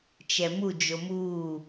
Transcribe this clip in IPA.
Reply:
t͡ʃɛmud͡ʒo mu

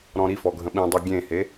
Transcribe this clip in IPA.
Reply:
ɾɔ̃ɾifɔ ɡʱə̃ɓĩdˤi ɡʲẽhe

